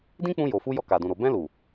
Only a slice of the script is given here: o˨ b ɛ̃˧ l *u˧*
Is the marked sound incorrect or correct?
incorrect